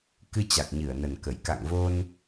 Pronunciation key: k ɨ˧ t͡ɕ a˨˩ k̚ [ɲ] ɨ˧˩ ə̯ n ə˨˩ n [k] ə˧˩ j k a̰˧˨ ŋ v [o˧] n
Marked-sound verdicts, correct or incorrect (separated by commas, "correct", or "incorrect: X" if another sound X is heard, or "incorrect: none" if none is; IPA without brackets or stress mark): correct, correct, correct